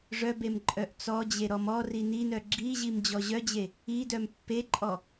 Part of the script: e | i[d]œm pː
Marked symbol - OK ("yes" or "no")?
yes